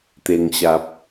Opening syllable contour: low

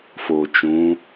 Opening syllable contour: low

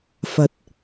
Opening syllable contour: rising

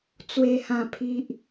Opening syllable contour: falling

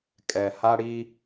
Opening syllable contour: low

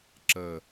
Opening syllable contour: low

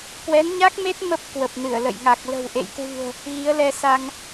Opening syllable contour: rising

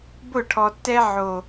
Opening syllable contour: falling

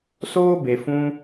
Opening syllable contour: high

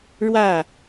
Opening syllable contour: falling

